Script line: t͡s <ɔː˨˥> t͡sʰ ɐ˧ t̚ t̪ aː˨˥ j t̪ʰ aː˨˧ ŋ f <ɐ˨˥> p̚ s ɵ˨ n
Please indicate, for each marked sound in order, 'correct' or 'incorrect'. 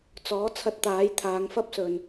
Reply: correct, incorrect

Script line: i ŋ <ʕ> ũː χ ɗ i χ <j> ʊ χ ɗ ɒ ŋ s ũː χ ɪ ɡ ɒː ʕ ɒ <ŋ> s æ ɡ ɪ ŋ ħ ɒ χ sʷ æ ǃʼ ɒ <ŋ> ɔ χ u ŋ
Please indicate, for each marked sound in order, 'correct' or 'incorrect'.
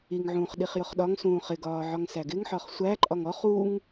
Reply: correct, correct, correct, correct

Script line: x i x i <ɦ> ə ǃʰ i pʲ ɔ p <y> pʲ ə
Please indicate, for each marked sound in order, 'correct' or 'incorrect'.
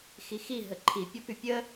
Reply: correct, correct

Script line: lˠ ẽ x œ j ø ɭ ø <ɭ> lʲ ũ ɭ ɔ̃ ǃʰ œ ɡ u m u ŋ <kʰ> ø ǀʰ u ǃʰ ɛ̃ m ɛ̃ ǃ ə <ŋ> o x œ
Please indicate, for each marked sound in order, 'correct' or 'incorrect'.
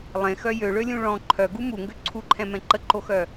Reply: incorrect, incorrect, incorrect

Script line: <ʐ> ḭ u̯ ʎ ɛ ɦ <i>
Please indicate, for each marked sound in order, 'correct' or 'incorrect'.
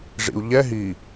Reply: correct, correct

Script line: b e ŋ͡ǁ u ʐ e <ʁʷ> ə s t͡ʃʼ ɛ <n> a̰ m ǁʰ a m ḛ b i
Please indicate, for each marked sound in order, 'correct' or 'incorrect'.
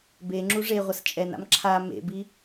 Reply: correct, correct

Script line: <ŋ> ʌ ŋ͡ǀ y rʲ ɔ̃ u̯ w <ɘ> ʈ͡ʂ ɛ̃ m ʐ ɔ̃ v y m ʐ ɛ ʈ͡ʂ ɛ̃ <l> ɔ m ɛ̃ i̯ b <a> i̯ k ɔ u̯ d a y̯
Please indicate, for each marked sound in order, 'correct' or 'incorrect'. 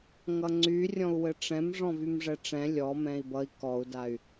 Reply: correct, correct, incorrect, incorrect

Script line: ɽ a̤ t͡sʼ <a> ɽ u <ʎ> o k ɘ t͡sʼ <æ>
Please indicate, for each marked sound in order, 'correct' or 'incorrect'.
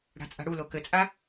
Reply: incorrect, incorrect, incorrect

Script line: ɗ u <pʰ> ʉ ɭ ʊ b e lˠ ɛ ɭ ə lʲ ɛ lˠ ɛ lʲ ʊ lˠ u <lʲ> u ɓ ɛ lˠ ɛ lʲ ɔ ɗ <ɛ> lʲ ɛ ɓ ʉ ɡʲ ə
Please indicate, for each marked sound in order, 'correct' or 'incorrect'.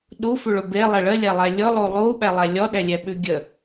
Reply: incorrect, incorrect, correct

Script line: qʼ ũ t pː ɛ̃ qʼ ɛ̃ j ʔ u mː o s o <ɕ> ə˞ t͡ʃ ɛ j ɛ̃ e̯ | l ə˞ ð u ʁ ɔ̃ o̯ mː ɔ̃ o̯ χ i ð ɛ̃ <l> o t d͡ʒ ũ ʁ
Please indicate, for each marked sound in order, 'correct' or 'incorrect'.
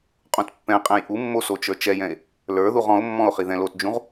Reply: incorrect, correct

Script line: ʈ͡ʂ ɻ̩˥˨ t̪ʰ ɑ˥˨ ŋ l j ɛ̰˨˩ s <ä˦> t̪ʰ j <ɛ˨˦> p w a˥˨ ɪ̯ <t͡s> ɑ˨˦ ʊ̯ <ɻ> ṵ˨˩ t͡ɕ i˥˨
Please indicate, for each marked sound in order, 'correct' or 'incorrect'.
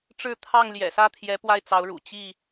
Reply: incorrect, correct, correct, correct

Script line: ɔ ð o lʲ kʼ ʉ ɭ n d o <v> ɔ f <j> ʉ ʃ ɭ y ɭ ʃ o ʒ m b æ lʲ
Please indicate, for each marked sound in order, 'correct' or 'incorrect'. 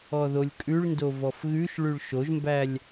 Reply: correct, incorrect

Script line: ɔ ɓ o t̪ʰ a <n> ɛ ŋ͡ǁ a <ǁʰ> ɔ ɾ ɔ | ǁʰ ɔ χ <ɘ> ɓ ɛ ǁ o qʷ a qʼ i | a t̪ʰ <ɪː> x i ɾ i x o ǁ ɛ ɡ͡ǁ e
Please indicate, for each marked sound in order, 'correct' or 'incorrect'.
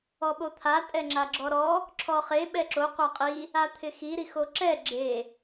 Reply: incorrect, incorrect, incorrect, incorrect

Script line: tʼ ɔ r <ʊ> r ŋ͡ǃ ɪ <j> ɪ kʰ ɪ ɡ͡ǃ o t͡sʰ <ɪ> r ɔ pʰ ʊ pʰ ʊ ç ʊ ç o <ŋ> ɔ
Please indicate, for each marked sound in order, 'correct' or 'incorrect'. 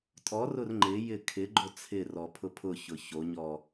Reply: correct, correct, correct, incorrect

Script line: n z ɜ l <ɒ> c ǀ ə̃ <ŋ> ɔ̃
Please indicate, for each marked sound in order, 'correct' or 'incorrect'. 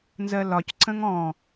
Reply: correct, correct

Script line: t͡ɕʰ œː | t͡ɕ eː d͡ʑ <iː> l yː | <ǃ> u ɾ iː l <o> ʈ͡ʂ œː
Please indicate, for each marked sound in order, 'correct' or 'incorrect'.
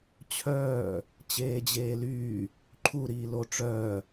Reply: incorrect, incorrect, correct

